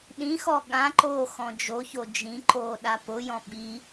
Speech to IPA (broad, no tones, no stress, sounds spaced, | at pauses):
ɗ ĩ x ɔ ɠ ã ǃ oː x ɔ̃ d͡ʒ o ç o d͡ʒ ĩ ǃ oː ɗ a p ʊ j ɔ̃ ɓ i